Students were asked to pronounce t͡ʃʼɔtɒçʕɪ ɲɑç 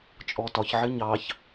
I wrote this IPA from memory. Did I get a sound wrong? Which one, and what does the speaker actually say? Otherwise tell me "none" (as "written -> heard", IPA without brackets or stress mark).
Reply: none